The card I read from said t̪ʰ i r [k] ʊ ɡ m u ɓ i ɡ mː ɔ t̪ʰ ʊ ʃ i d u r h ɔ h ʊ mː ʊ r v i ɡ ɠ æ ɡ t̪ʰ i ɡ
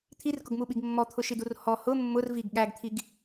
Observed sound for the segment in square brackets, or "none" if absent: k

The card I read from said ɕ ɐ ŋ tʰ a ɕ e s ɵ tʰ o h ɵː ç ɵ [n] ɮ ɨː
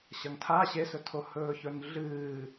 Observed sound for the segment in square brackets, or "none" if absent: n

